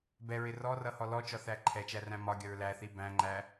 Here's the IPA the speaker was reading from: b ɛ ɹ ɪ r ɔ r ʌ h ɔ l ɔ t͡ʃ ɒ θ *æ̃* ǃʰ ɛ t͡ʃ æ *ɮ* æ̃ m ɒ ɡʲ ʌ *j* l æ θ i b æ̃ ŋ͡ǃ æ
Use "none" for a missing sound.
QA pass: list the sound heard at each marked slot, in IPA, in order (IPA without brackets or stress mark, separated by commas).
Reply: æ, r, ɹ